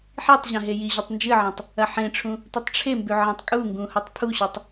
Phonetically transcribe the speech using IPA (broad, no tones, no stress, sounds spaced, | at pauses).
ħ i tˤ ʑ ã ɦ e j i ʑ u tˤ n d͡ʒ ɨ ʕ ẽ tˤ | ɐ ħ ẽ ʈ͡ʂʰ ũ | tʷ ɨ tˤ ʈ͡ʂʰ e m b ʉ ʕ ẽ tˤ kʼ u ŋ ɡ ũ h u tˤ pʰ u ɕ o tˤ